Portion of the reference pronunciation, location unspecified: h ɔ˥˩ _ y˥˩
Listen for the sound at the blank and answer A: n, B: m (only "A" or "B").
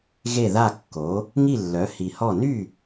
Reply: A